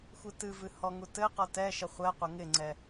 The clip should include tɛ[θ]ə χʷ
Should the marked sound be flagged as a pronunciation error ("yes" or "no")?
yes